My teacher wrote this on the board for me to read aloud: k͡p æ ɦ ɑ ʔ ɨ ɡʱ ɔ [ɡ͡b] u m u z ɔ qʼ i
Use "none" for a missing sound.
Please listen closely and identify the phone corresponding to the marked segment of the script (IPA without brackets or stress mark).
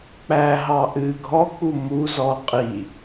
k͡p